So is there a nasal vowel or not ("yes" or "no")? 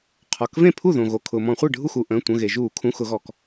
yes